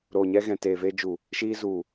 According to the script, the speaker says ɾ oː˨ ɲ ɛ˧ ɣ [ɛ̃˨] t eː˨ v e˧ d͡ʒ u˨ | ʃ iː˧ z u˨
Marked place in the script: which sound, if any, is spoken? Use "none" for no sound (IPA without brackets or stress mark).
ɛ̃˨